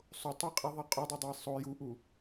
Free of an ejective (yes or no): no